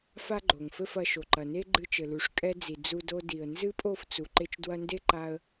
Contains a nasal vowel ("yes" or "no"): no